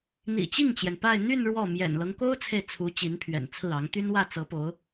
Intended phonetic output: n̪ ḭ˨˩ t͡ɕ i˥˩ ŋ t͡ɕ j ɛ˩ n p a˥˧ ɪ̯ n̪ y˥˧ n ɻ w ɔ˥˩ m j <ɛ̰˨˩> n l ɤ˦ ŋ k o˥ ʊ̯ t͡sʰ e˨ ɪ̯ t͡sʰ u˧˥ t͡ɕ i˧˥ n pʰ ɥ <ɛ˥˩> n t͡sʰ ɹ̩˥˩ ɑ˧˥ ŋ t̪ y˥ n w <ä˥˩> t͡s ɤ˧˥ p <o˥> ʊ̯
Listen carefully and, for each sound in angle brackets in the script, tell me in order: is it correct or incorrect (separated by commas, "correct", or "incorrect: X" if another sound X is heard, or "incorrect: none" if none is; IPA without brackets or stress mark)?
correct, incorrect: ɛ̰˨˩, correct, incorrect: o˧˥